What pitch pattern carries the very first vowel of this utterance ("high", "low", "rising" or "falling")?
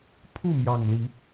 falling